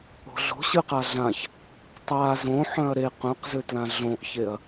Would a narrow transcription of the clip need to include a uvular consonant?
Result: yes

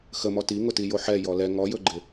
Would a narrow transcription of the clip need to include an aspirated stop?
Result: no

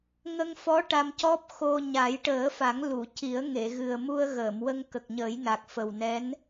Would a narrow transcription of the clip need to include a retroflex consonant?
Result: yes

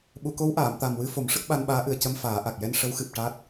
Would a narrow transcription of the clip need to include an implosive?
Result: yes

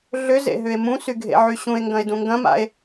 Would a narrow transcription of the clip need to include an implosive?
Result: no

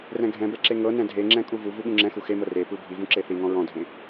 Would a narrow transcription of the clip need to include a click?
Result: yes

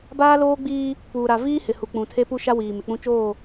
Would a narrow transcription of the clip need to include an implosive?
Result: no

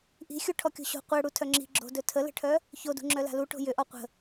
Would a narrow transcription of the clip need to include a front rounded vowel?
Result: yes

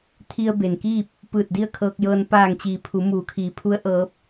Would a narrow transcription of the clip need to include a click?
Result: no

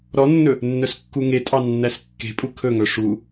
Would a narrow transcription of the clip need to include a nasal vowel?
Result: no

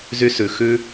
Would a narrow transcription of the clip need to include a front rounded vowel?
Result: yes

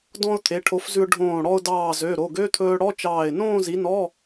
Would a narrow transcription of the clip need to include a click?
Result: no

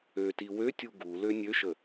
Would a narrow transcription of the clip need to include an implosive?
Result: no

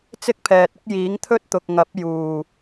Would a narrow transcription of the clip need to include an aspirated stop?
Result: yes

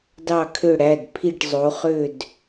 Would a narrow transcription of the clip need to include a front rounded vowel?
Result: yes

